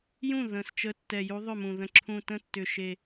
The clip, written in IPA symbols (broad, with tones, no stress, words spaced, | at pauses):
jũ˥˩ ðə̃˨˩st͡ʃə˨˦ tːɛ˨˩ju˨˦ ðˤʏ˥˩mũ˨˩ ðə̃˨˩ǁʰũ˨˩ tə̃˥˩tːʏ˨˩ʃe˨˩